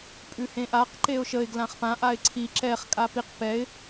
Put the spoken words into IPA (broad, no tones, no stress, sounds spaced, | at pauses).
pʼ ʉ h ẽ ʔ a q ǃ e ʊ̯ ʃ ə ɪ̯ ɡ l ã χ p ã ʔ a ɪ̯ ǀʰ i ǁ ɛ χ kʼ a p i q p ɛ ɪ̯